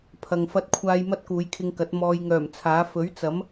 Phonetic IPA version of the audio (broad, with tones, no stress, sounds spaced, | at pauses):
pʰ ɐ˨ ŋ f ɐ˧ t̚ kʷʰ aː˧ j m ɐ˥ t̚ k uː˨˧ j kʰ ɪ˧ ŋ k ɐ˨˥ t̚ m ɔː˧ j ŋ œː˨˩ m t͡sʰ aː˨˥ f ɵ˨˥ ɥ t͡s ɐ˨˥ m